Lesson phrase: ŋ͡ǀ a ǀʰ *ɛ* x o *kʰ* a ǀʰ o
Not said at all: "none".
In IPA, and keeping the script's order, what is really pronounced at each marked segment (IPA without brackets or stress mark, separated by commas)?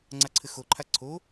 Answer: ɘ, ǃʰ